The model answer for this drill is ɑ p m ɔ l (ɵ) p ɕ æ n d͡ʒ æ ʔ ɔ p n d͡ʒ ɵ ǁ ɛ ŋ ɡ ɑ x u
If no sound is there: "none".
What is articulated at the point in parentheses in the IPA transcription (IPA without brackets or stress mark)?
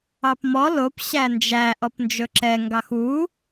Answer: o